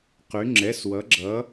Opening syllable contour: rising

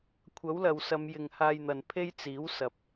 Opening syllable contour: rising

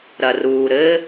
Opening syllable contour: low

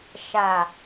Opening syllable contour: low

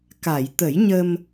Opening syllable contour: low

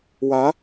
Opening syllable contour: rising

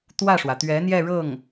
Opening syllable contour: falling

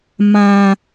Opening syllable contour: low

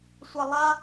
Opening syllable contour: low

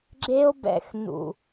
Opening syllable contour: high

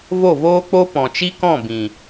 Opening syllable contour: falling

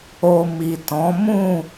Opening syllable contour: low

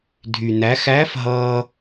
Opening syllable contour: low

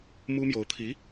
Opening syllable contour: high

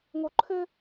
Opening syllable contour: high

